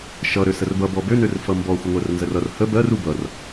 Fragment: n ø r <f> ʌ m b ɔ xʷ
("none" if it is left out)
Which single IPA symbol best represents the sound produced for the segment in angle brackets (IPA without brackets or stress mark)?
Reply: f